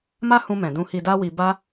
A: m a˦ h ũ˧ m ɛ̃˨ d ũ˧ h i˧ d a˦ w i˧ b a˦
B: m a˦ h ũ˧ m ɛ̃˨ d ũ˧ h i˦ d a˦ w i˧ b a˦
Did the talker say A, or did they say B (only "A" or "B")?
A